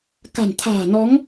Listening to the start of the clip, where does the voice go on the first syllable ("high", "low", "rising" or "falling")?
low